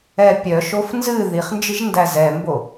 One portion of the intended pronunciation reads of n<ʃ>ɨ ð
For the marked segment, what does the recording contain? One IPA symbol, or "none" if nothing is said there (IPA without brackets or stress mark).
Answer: z